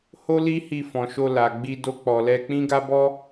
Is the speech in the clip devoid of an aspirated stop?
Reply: yes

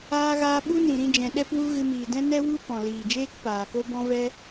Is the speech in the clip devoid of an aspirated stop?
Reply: yes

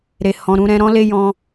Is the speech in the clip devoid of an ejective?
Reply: yes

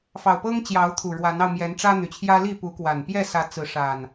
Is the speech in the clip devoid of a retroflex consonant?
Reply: no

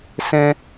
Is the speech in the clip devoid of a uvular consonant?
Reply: yes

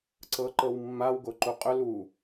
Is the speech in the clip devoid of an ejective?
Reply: no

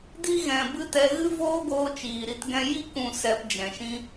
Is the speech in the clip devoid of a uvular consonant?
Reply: yes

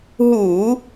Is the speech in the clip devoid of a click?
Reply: yes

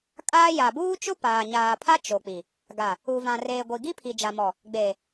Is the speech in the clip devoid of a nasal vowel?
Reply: no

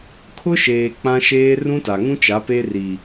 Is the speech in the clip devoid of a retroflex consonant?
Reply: yes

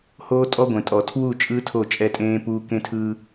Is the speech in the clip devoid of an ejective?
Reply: no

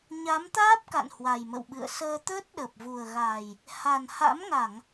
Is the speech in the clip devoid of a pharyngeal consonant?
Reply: yes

